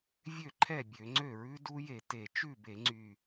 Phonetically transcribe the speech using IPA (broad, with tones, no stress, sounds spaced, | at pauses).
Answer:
vʲ ø˥˩ ǃʰ ɛ˥˩ bʲ ø˧˩˧ ŋ͡ǀ ø˥˩ ɹ ʉ˦˥ d u˦˥ j e˧˩˧ t e˧˩˧ t͡ʃ ʉ˥˩ b e˧˩˧ ŋ͡ǀ y˨˩